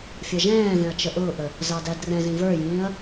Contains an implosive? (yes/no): no